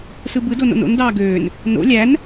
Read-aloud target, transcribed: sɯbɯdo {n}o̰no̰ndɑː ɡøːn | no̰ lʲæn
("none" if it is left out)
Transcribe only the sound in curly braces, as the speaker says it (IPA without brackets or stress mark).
n